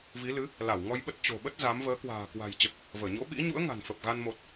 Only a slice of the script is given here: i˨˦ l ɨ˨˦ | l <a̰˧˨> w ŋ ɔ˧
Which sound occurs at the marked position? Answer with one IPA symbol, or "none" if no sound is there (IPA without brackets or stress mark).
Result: a˧˩